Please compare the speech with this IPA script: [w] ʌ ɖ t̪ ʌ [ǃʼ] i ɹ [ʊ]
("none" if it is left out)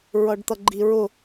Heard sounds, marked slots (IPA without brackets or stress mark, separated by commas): ɹ, ɡ͡ǃ, ʊ